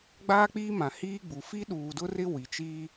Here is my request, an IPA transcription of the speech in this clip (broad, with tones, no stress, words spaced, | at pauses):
ɡ͡baː˦k͡piː˦mã˨hiː˦ ɡ͡bu˨ fi˦ɗuː˨dʊ˦rɪ˦ wi˨t͡ʃiː˦